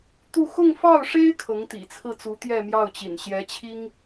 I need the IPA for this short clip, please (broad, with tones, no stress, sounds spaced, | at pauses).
t̪ u˥˧ x ʊ˥˧ ŋ f ɑ˥˩ ʊ̯ ʂ e˥ ɪ̯ kʰ ɤ˧˥ ŋ t̪ ḭ˨˩ t͡sʰ ɹ̩˥˩ t͡s u˧˥ t̪ j ɛ˥˧ m j ɑ˥˩ ʊ̯ t͡ɕ ḭ˨˩ n ɕ j ɛ˧˥ t͡ɕʰ i˥ ŋ